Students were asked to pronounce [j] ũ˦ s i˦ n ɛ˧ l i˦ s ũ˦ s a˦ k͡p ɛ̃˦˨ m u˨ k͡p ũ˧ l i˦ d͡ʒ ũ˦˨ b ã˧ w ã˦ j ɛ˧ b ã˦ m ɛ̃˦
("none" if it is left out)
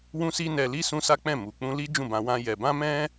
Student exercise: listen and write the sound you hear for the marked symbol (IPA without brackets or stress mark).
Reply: w